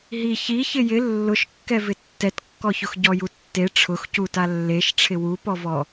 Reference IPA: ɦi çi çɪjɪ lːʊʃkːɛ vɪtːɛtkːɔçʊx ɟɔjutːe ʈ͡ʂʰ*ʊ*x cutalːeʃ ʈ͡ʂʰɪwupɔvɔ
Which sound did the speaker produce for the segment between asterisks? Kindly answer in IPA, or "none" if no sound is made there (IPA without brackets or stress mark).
ʊ